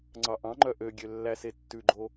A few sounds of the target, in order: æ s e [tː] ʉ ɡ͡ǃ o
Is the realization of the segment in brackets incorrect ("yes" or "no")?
no